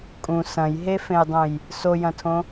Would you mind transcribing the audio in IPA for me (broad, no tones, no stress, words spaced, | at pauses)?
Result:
kʼũ sɐ̃jɦefẽjdˤũj | sojɐ̃tʰõ